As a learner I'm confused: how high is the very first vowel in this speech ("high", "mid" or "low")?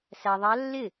low